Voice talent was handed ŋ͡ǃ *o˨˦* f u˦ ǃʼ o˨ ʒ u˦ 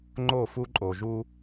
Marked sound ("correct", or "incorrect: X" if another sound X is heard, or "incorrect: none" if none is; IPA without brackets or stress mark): incorrect: o˦˨